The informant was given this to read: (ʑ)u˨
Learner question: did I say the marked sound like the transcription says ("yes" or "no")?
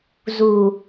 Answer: no